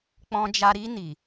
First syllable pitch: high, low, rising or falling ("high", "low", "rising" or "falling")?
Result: low